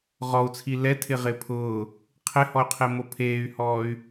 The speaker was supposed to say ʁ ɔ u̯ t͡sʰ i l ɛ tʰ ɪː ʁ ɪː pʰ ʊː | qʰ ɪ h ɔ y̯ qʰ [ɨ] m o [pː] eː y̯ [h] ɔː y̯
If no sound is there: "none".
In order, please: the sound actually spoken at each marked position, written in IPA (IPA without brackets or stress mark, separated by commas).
e, pʰ, h